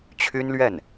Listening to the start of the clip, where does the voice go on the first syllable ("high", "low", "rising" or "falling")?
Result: high